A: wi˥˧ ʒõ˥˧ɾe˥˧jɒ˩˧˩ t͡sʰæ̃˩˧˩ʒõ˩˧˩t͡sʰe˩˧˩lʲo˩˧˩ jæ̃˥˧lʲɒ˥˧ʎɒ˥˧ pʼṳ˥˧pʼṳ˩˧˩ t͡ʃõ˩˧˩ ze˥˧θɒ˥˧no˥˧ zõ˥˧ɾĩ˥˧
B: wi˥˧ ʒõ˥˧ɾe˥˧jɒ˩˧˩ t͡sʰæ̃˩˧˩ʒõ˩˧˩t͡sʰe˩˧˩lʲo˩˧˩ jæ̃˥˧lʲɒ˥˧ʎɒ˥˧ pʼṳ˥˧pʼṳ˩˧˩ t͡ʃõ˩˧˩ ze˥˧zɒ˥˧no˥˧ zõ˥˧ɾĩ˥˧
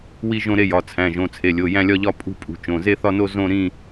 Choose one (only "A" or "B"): A